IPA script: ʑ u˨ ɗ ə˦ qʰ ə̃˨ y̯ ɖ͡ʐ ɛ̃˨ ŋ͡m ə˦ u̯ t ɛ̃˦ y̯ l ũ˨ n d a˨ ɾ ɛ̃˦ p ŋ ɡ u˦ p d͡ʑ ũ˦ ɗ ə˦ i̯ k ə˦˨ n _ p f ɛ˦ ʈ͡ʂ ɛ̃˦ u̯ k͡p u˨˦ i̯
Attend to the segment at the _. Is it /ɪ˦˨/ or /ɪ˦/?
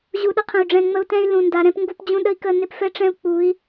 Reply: ɪ˦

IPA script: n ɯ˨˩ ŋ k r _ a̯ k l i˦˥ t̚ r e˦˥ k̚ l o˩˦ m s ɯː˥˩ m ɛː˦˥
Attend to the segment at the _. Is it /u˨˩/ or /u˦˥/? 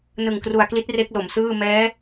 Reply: u˨˩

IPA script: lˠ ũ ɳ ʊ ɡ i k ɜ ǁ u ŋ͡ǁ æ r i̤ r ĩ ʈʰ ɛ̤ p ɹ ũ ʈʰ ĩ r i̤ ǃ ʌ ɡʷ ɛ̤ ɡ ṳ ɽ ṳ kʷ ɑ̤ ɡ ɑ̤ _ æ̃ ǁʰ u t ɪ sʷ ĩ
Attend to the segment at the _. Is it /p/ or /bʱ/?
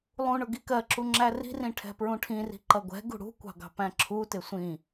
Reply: p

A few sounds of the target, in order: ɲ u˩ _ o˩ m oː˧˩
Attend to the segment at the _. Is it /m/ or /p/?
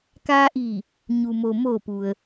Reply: m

